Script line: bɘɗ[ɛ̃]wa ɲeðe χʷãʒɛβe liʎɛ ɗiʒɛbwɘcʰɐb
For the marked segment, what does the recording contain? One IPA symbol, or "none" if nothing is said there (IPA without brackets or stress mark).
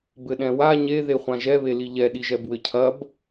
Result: ɛ̃